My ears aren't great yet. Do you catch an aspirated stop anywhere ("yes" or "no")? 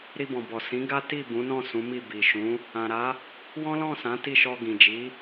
no